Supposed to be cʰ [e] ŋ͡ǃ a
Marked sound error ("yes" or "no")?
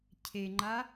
no